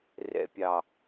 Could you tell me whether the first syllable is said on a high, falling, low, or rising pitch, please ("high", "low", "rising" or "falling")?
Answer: low